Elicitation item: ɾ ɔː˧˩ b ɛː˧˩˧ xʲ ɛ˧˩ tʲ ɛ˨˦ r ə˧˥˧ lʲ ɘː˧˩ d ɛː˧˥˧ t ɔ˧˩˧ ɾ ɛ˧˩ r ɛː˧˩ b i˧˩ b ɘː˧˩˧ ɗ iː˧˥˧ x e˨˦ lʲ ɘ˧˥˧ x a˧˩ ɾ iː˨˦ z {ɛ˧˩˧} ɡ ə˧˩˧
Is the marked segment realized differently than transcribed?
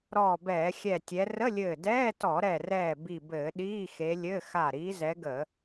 yes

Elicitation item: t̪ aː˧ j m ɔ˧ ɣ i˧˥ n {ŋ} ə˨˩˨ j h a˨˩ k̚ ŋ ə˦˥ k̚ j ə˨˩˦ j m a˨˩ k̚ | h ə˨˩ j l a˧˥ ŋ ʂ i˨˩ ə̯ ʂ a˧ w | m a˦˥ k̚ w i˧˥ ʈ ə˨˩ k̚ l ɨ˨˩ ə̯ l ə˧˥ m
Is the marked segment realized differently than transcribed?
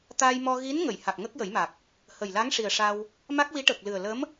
no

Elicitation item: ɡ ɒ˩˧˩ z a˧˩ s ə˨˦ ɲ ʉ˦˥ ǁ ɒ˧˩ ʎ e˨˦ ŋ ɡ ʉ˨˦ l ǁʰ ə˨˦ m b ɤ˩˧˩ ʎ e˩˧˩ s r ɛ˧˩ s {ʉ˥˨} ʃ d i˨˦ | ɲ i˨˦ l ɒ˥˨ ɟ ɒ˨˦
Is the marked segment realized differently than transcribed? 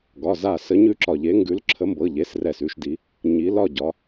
no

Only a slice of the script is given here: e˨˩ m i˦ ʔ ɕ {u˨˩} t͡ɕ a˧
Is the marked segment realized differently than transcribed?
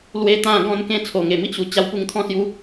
no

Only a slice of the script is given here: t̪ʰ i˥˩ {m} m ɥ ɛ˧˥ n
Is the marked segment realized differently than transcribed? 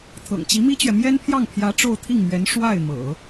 yes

